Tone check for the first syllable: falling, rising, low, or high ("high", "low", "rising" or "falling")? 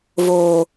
low